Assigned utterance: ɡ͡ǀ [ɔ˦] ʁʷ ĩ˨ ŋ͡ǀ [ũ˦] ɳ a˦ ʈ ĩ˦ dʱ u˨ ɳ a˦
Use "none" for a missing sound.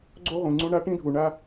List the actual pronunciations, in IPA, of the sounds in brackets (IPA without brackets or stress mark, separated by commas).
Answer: o˦, ũ˦